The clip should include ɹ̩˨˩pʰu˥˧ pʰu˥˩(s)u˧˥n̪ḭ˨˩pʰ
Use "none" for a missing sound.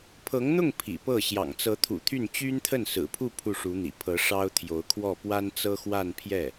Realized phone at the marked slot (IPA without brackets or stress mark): ʂ